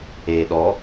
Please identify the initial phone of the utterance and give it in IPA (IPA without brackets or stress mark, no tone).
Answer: eː